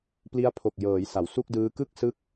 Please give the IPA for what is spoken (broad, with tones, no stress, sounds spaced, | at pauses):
p l i˦˥ a̯ pʰ o˨˩ k̚ j ɤː˩˦ j s a˩˦ w s u˥˩ k̚ d ɯː˦˥ k ɯ˥˩ k̚ s ɯ˦˥ k̚